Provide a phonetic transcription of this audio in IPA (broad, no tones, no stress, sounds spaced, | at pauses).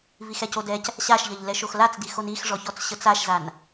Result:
v i x ɛ c o d ɛ c | ɕ a ʃ ʎ ʌ ʎ l ɛ ʃ o x l a t͡s d i x o n i x ʐ ɔ ç ɔ t͡s ɕ ə t͡s a ʃ z a n